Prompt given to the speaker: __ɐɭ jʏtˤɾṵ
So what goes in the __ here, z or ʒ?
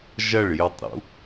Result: ʒ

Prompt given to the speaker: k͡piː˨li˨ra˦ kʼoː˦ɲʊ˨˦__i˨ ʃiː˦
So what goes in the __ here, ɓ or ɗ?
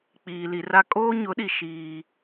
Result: ɗ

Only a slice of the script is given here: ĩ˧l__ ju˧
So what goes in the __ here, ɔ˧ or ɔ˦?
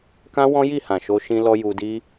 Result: ɔ˧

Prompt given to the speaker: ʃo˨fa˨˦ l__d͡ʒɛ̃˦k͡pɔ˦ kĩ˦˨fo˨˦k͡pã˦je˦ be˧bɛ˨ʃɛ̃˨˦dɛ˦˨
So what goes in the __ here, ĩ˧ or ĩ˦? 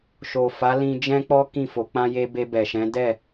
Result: ĩ˧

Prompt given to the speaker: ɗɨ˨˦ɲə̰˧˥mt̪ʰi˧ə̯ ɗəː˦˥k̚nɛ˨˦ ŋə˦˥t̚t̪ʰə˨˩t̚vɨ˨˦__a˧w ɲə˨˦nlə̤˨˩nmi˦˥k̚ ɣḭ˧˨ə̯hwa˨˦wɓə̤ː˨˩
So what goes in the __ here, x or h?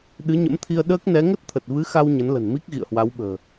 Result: x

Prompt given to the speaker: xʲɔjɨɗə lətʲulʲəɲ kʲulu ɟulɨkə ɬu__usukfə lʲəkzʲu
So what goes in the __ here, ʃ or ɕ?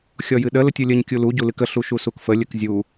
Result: ʃ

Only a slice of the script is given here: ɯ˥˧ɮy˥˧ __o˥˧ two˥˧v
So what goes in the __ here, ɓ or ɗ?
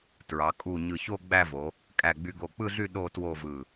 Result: ɗ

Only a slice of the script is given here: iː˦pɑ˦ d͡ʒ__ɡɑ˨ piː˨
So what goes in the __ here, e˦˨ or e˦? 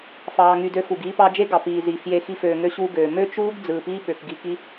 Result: e˦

